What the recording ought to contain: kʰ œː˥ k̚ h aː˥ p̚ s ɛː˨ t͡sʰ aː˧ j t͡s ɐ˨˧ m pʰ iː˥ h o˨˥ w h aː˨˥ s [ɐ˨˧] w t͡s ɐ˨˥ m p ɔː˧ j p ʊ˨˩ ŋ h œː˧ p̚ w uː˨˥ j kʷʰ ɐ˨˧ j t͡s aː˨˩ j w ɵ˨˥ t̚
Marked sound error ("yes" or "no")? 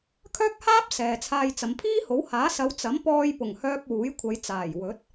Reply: no